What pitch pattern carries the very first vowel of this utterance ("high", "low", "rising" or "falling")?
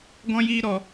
high